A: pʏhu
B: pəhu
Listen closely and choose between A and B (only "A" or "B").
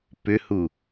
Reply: A